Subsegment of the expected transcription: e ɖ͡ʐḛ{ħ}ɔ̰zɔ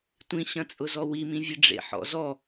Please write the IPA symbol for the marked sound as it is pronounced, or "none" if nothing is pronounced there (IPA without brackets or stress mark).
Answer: ħ